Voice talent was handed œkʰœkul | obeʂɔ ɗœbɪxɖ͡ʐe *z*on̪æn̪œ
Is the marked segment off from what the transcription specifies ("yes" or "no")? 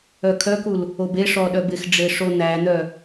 yes